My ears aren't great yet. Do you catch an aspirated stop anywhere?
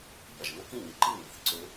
no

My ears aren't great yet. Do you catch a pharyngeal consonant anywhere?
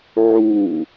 yes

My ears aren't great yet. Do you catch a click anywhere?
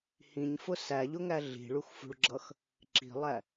yes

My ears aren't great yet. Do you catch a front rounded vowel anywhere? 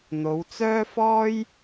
yes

